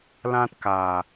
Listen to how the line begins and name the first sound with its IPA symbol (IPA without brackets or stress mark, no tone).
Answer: l